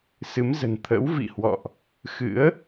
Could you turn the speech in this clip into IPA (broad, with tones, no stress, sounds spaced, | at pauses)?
s ɨ˨˦ m z ə̤˨˩ n t̪ʰ ə̰˧˥ w v ḭ˧˨ h w ɔ̰˧˨ ʔ | x ɨ̰˧˥ ə̯